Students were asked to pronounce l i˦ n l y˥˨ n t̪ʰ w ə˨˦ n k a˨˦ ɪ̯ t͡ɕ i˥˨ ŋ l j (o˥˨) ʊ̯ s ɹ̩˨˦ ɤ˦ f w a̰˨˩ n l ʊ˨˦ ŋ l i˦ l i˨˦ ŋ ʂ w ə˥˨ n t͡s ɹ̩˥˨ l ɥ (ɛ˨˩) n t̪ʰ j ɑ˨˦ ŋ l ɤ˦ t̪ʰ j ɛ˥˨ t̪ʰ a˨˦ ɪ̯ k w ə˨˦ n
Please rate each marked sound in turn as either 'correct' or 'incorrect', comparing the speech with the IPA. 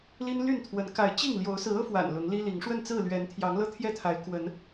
incorrect, incorrect

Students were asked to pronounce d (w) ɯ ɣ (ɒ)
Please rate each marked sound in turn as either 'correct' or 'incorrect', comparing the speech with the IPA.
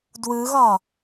correct, correct

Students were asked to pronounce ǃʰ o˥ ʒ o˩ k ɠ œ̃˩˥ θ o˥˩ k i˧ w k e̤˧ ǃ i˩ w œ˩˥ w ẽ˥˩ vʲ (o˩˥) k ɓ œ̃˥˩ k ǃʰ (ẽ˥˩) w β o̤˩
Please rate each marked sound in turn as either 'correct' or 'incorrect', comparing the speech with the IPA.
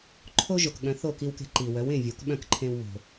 incorrect, incorrect

